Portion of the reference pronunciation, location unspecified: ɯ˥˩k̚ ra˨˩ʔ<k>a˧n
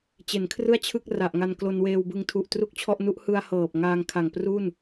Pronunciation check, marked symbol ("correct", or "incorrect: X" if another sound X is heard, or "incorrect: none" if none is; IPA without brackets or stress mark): incorrect: ŋ